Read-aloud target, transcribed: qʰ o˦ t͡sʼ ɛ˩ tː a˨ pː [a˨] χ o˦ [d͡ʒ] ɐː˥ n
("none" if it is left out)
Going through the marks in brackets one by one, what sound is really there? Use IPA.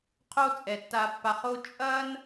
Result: a˨, t͡ʃʼ

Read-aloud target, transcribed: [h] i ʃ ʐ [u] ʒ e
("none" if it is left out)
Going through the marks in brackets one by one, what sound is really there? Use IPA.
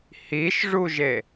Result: h, u

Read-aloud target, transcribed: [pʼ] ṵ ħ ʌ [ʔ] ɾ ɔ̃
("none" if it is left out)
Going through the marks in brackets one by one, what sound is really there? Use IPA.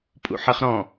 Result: pʼ, χ

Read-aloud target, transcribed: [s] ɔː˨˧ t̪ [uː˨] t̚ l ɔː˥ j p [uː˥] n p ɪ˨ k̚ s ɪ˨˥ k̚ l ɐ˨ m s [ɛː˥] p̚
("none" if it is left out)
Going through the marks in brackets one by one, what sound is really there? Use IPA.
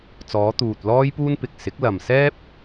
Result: t͡s, uː˨, uː˥, ɛː˥

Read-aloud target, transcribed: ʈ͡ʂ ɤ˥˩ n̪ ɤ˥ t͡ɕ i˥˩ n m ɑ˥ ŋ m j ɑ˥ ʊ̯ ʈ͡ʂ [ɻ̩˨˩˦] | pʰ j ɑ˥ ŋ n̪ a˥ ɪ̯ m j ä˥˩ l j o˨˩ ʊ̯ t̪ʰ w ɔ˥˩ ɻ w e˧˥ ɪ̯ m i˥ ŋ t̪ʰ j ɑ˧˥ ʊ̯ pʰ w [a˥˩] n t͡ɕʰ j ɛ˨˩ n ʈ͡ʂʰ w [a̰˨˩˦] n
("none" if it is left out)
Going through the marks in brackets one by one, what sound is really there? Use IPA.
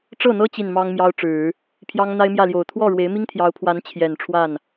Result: ɻ̩˨˩˦, a˧˥, a˥˩

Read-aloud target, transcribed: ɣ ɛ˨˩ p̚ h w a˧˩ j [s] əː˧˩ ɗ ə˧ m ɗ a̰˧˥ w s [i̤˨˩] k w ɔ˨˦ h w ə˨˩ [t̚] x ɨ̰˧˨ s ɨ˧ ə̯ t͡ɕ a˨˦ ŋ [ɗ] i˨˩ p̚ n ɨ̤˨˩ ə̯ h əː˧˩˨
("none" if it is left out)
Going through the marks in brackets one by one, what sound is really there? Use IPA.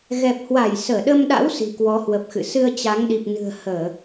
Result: s, i̤˨˩, p̚, ɗ

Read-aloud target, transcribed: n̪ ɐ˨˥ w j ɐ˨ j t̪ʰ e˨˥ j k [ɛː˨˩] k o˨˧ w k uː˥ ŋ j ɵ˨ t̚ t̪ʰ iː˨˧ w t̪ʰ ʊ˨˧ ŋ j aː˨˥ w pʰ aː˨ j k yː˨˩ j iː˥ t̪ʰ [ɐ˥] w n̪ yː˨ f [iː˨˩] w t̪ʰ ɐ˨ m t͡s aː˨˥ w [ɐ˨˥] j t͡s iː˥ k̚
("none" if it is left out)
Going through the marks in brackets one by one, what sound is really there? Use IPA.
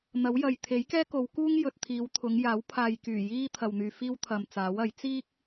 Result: ɛː˥, ɐ˨, iː˥, ɐ˨˥

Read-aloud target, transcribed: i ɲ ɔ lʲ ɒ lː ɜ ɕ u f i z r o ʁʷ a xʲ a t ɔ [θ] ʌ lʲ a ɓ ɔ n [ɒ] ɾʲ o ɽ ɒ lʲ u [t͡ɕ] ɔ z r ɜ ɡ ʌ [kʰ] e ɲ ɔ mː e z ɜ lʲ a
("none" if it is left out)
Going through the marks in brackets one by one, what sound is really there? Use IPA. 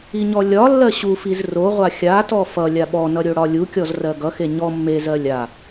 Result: f, ʌ, kʲ, x

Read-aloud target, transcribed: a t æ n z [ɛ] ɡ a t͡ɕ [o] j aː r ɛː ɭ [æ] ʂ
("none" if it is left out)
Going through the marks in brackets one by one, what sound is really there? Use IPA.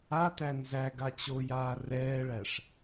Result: æ, o, æ

